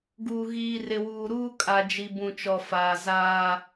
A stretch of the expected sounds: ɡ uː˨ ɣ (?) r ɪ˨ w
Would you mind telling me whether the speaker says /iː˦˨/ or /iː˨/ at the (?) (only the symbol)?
iː˨